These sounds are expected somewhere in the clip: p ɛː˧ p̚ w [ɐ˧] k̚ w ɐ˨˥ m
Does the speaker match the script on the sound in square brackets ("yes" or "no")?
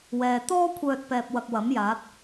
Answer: yes